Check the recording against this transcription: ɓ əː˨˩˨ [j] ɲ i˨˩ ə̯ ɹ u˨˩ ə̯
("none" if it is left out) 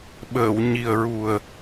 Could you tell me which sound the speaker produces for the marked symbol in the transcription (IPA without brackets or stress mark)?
w